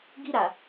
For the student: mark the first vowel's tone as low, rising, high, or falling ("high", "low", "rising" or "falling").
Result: high